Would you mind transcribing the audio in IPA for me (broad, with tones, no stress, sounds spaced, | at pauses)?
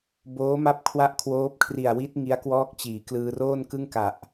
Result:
b oː˦˥ m a˦˥ p̚ kʰ w a˦˥ ʔ kʰ w oː˦˥ p̚ kʰ r i˨˩ a̯ w i˦˥ t̚ ŋ i˦˥ a̯ k w ɔː˦˥ k̚ t͡ɕ iː˩˦ k l ɯː˧ r oː˥˩ n k ɯ˥˩ ŋ k a˨˩ ʔ